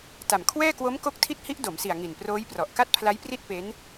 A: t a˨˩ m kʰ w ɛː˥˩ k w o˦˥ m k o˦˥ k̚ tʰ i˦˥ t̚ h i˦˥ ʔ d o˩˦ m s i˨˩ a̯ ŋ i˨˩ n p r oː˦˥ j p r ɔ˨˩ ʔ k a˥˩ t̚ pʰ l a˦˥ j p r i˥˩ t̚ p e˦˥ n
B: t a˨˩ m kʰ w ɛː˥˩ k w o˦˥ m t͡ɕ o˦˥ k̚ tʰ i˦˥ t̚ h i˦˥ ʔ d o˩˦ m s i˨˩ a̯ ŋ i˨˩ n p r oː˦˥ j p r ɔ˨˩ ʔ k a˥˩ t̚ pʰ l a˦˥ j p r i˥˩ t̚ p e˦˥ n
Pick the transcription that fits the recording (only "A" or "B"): A